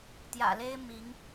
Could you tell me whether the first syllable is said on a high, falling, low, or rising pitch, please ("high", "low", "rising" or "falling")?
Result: low